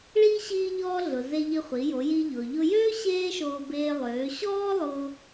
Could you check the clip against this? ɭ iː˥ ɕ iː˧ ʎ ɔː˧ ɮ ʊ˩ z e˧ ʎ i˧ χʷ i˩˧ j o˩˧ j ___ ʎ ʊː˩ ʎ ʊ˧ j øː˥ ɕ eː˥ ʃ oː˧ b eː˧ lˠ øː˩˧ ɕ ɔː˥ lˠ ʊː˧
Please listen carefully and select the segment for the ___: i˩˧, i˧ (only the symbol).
i˧